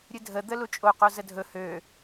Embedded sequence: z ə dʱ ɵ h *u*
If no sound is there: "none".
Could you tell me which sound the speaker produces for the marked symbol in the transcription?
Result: ø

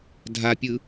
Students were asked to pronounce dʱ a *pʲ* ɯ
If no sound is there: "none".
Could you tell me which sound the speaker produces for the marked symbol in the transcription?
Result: pʲ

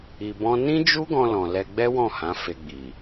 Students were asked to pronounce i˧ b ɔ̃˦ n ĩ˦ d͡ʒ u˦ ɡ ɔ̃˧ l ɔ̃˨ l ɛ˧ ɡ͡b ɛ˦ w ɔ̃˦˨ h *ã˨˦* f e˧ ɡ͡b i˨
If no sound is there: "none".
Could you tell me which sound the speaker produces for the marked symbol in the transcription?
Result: ã˨˦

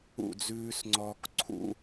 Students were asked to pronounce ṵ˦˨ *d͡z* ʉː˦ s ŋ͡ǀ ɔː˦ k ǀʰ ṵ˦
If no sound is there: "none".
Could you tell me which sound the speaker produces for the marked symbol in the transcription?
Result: d͡z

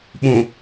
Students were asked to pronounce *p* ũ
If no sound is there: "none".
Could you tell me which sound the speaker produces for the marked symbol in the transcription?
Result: ɓ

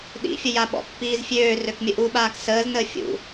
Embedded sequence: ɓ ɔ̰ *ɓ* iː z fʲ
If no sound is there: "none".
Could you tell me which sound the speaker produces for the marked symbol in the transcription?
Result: pː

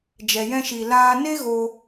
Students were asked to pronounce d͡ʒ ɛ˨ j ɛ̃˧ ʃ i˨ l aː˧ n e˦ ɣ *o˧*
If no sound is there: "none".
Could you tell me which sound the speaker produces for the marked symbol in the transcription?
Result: o˧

